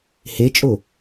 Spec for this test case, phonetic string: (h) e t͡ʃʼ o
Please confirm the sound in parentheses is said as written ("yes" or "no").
yes